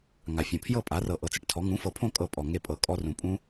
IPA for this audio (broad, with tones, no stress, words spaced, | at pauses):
ŋa˨˩fʲõ˨˩ pʰjɤ˥˨pʼa˩˥rɤ˨˩ ʔɤ˨˩t͡sɯ˩˥ʈtʰɔ˩˥ ŋũ˩˥fɤ˨˩pʰõ˥˨ kʼɤ˥˨pʼɔ˨˩ ŋe˥˨pʼɤ˨˩kʼɔ˦˥ rũ˨˩pʼũ˦˥